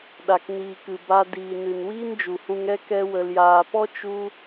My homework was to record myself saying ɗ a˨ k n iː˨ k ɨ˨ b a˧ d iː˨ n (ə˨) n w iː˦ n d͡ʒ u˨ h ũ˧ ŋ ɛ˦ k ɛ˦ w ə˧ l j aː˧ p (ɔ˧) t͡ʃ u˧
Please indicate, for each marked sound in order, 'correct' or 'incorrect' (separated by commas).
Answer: incorrect, incorrect